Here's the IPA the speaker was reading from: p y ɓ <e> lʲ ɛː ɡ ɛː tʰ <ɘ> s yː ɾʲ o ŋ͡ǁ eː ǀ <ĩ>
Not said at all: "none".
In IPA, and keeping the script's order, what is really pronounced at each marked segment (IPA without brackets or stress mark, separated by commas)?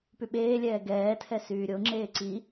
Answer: eː, ɛ, i